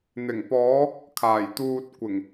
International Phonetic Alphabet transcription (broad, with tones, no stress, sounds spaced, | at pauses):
n̪ ɪ˨˩ ŋ p ɔː˨˧ | kʰ aː˨˩ j t̪ uː˨ t̚ kʷ ɪ˨˩ ŋ